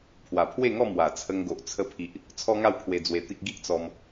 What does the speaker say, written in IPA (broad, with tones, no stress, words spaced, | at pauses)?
pʰwa˨˩pʰwe˥˧ŋɔ˥˧ mwa˨˩t͡sʰə˧ŋɡo˨ʔ t͡sʰə˧pʰi˨ʔ | t͡sʰɔ˦ŋa˥˧wkʰwe˧ d͡zwe˧t̪i˦k̚ ɡi˦ʔt͡sɔ˧m